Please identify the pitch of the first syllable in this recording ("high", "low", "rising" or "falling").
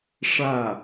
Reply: falling